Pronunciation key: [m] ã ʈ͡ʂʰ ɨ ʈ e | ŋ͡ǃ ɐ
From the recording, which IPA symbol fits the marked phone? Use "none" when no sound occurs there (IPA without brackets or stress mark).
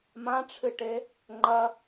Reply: m